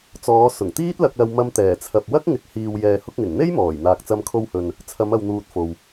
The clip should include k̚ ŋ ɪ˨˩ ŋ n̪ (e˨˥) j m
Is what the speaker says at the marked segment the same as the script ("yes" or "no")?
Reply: no